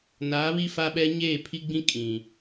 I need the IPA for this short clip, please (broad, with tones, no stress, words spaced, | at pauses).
naː˨˦βi˦fa˦ɓɛ˦ ɲeː˦˨pʰi˦ɡ͡bĩ˦ kʼĩ˨